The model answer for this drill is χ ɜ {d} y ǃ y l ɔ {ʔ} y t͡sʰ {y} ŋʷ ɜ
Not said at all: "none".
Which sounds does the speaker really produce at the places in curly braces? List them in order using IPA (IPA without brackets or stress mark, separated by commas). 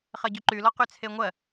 ɟ, q, e